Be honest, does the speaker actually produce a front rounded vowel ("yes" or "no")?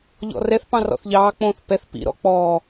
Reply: no